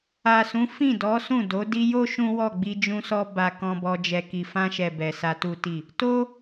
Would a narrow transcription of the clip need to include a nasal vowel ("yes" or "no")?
yes